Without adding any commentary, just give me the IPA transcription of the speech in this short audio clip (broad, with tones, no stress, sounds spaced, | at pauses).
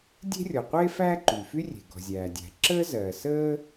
dʲ e̤˥ rʲ ɔ˩ qʷ e˥ f æː˥ ǃ y˩ f y˥ rʲ e̤˩ ɡ ɔ̤˩ zʲ æː˩ dʲ æ̤˩ ǁ əː˥ z ɜ˩ s əː˥